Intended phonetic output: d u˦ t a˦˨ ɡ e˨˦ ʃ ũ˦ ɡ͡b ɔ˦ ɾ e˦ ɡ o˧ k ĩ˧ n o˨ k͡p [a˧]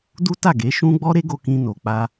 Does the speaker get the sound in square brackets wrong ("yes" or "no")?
no